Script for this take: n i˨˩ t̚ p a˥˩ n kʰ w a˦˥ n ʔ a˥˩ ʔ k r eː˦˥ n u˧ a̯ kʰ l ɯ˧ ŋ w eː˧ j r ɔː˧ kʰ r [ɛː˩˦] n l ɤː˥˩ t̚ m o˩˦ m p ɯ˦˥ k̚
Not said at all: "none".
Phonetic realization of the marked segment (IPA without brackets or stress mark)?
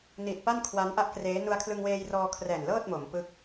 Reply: ɛː˨˩